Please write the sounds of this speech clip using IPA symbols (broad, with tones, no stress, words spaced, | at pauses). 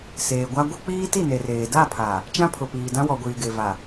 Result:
seː˨ɡʷa˦ ɡʷe˦ k͡piː˦ti˦˨ne˨reː˨ da˦˨ pʰa˨ | t͡ʃã˦pʰʊ˨piː˨dã˦ wɔ˨ɡʷiː˨ɡe˨va˨